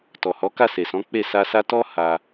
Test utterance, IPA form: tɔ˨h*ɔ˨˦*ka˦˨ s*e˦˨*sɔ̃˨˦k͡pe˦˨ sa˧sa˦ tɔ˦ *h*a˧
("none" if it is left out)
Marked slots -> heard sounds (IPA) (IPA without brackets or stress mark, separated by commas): ɔ˨˦, e˨, h